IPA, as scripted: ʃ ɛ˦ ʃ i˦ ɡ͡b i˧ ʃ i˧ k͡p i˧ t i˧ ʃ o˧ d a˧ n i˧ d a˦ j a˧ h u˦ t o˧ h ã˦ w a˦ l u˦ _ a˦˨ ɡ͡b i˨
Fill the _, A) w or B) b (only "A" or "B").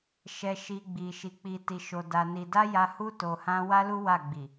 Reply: A